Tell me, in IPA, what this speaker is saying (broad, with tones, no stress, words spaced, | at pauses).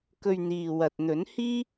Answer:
kɵ˧ɥ n̪iː˨ wɐ˨t̚n̪ɵ˨˥n hiː˥